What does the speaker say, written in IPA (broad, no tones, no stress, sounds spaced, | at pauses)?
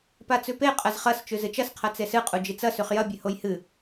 p a t͡s ʉ p e qʼ ɐ z χ ɐ s t͡ʃ ʉ z ɨ t͡ʃ ɐ s qʰ ɐ t͡s e s ɨ qʼ u d͡ʒ i t͡s ɐ s ʉ χ j ɐ bʲ ʉ h o j h ɨ